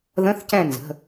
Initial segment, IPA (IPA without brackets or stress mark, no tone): ð